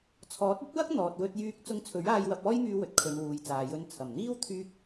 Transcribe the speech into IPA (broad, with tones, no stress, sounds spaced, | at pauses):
t͡sʰ ɔː˨˥ t̚ ɐ˥ t̚ w ɐ˥ k̚ n̪ ɔː˨ t̚ w ɵ˧ t̚ j yː˧ k̚ t͡s ʊ˧ ŋ t͡sʰ ɵ˨˥ ɥ aː˧ j w ɐ˧ p̚ ɔː˥ j m yː˧ w ɵ˨ t̚ kʰ ɵ˨˧ n w uː˨ j t͡s aː˨ j ɵ˧ n t͡sʰ ɐ˨˩ m n̪ iː˥ w t̪ʰ yː˥ k̚